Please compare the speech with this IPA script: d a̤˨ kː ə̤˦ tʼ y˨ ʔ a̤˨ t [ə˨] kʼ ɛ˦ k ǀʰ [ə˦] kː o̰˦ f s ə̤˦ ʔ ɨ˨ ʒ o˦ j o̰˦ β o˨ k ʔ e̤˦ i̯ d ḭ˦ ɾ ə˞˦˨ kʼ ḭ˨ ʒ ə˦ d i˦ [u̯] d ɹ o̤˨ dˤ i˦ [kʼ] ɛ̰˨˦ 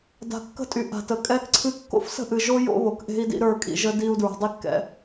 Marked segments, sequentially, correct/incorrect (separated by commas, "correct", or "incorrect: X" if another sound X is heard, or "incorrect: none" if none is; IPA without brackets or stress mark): correct, incorrect: ɨ˦, correct, incorrect: kː